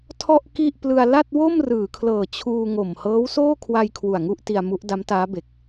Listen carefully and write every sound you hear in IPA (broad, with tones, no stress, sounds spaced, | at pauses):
tʰ ɔ˥˩ ʔ k i˥˩ ʔ p l ɯ˧ a̯ l a˥˩ t̚ w o˥˩ m r ɯː˩˦ kʰ l ɤː˨˩ t͡ɕʰ uː˧ ŋ o˨˩ m h ɤː˦˥ w s oː˥˩ kʰ w a˧ j kʰ w u˨˩ a̯ ŋ u˥˩ ʔ t i˧ a̯ m u˦˥ ʔ d a˦˥ m t aː˦˥ b e˨˩ k̚